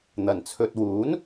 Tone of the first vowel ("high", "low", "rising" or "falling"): low